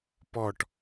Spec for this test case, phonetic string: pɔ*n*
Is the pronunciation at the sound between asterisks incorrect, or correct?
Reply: incorrect